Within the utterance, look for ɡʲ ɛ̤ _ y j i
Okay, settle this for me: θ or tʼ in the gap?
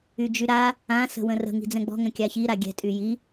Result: tʼ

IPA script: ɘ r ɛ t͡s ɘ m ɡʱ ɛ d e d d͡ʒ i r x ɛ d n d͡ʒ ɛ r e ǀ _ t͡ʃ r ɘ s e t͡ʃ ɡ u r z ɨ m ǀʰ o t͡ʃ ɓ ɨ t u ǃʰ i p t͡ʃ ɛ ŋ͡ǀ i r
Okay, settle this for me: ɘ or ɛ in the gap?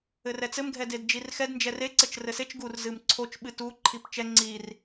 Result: ɘ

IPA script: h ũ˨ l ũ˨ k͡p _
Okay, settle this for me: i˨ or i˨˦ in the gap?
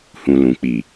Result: i˨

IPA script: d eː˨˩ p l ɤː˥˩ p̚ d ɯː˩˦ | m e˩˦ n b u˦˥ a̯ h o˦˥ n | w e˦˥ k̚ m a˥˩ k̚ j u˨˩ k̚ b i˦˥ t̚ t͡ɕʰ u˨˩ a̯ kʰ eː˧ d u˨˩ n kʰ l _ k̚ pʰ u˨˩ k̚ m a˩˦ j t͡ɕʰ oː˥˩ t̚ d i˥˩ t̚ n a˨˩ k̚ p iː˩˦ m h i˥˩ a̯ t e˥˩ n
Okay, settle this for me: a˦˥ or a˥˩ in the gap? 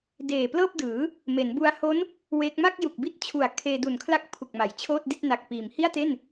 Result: a˥˩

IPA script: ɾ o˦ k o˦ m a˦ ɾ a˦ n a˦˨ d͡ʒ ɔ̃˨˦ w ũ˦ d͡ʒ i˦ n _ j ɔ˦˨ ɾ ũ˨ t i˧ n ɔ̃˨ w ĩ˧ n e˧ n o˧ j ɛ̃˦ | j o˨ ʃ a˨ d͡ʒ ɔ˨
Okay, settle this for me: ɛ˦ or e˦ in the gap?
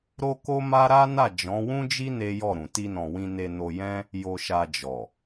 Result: e˦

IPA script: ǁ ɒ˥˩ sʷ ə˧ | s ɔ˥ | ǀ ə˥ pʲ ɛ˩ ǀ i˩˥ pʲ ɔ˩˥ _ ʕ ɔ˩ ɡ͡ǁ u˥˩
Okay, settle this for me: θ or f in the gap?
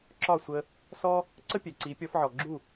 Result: f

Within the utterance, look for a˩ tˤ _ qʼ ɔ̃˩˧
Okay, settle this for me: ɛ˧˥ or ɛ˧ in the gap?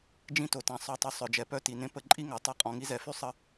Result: ɛ˧˥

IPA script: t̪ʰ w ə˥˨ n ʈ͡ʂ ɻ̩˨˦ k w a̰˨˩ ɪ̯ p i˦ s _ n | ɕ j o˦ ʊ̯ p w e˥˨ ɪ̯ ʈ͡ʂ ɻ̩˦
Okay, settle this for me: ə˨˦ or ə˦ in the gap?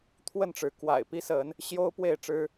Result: ə˨˦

